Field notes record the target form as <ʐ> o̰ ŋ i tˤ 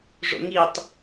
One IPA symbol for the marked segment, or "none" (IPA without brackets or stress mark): ʐ